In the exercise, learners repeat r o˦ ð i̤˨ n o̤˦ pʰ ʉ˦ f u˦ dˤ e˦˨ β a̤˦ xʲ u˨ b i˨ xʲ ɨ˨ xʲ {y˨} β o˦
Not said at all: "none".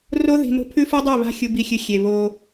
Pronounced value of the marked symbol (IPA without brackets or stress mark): e˨